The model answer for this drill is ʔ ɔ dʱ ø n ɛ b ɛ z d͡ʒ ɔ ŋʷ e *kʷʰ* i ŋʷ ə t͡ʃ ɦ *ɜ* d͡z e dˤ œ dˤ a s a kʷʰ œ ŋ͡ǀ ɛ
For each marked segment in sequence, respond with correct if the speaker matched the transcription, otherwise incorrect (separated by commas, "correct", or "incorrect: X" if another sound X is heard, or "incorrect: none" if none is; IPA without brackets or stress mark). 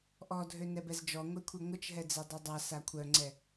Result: correct, incorrect: ɛ